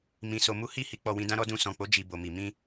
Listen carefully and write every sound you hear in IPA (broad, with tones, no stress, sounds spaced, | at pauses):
m ĩ˧ s o˧ m u˦ h i˦˨ h i˨˦ k͡p ɔ˧ w ĩ˧ d ã˦ ɾ ɔ˦ d ũ˧ s ɔ̃˨ k͡p o˨˦ d͡ʒ i˧ b o˨ m i˨ m ĩ˧